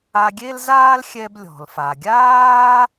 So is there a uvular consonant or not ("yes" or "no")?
no